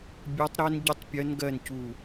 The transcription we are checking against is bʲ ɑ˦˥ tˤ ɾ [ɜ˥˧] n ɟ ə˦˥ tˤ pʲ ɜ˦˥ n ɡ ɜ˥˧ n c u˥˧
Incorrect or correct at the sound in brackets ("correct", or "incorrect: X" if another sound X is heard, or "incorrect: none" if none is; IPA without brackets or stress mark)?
incorrect: ɜ˦˥